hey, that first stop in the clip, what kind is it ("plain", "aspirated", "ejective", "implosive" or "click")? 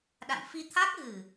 implosive